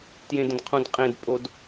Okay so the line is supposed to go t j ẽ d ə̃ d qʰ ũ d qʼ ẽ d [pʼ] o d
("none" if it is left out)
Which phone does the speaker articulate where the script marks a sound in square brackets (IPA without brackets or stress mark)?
pʼ